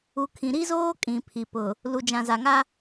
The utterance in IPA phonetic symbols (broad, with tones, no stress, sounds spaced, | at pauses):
u˨ kʰ ĩ˨ ɾ i˦ z oː˦ kʼ ĩ˨ pʰ i˨ p ʊ˨ | l u˨ d͡ʒ ã˨ z a˨ ŋ a˦